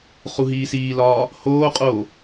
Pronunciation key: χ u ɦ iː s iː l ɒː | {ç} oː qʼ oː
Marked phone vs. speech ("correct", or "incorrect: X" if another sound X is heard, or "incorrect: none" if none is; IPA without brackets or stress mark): incorrect: h